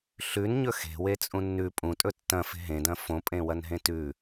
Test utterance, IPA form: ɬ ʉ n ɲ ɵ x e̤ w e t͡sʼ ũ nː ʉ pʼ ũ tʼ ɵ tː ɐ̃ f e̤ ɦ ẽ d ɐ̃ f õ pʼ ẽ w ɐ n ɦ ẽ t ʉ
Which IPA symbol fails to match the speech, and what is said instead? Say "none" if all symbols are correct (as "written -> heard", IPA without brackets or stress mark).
none